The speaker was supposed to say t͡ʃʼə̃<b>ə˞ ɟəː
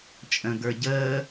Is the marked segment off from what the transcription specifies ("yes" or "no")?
yes